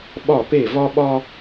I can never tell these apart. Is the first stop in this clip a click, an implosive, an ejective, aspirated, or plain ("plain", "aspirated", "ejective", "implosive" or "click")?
implosive